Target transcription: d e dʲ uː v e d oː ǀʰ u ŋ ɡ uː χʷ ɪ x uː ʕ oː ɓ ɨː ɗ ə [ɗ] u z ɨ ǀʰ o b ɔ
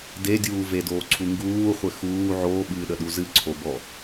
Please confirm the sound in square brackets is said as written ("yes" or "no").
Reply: yes